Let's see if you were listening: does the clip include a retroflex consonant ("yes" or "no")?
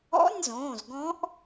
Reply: no